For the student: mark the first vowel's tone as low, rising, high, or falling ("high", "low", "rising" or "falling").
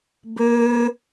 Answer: high